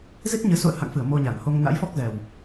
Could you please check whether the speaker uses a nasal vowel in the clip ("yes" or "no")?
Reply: no